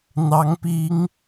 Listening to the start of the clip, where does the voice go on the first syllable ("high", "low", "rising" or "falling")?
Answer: rising